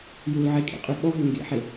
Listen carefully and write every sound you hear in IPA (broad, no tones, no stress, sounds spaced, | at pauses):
j u l ʕ e kʼ ḛ qʼ ʉ ɓ ɔ ɦ ɵ ŋ ɡ ḛ ħ e